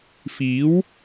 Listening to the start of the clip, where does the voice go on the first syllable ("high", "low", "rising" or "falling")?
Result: rising